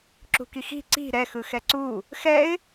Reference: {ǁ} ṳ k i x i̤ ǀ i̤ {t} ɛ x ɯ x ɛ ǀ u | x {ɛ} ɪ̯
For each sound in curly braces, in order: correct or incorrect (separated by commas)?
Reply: correct, incorrect, correct